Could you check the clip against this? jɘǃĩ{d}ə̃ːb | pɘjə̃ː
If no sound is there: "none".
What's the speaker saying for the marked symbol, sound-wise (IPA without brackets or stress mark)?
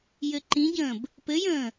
ɟ